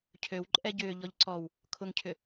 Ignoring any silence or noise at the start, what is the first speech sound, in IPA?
cʰ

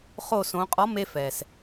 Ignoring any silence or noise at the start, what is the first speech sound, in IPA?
χ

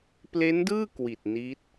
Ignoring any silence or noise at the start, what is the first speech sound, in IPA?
p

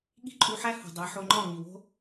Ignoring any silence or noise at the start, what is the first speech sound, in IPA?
ɠ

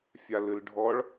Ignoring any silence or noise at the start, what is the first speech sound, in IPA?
fʲ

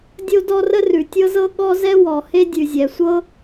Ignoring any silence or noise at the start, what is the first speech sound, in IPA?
dʲ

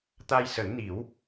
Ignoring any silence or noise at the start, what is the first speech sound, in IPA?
t̪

